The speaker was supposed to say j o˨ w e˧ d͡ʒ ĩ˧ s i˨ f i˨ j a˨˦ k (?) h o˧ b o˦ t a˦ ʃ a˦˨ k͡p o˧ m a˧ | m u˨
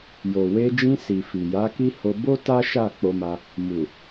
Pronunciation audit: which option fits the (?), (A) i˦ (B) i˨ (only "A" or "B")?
A